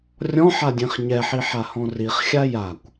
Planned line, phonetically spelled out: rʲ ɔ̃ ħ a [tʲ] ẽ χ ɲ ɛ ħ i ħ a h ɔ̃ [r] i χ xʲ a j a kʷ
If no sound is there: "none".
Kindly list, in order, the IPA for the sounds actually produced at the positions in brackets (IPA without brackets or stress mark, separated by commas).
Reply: dʲ, r